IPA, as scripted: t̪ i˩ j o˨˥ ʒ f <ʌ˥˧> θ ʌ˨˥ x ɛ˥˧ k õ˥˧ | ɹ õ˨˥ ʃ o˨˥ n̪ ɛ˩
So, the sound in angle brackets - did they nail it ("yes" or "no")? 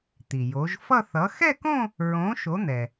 yes